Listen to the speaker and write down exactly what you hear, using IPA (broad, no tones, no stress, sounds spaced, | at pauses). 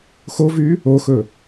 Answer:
x o v y | o x ɵ